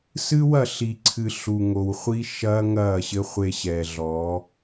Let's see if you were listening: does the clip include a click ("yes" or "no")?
yes